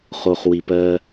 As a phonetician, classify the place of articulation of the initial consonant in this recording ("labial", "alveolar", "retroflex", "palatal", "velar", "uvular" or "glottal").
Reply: uvular